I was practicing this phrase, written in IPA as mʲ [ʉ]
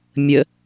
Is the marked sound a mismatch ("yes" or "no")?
yes